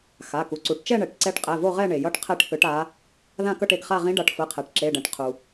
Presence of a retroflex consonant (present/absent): present